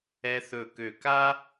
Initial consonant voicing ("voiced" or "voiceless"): voiceless